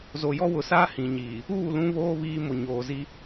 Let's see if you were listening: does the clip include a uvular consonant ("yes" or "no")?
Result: no